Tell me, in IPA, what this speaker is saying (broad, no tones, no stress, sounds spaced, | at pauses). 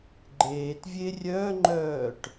ɡ͡ǃ eː t vʲ e rʲ œ ŋ͡ǃ œː ʈ